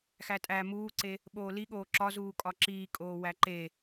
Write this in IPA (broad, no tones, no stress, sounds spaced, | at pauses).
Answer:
x æ tʼ æ m uː ǀ e | ɓ oː l i ɠ oː ǁ ɒ z uː kʼ ɒ ǁ iː kʼ oː w æ ǃ e